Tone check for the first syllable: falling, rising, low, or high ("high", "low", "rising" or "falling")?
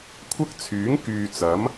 high